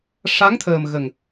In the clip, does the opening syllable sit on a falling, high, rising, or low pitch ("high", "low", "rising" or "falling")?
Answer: rising